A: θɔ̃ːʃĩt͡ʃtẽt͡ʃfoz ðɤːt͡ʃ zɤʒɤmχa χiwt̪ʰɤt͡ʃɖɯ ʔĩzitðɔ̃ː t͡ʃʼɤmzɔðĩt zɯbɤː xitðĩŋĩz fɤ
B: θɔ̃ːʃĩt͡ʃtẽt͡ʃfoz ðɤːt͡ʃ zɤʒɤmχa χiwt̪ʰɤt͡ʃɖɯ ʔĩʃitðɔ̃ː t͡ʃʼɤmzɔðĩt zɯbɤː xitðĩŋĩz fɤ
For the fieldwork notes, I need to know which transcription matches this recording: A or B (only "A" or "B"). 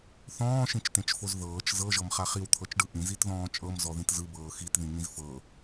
A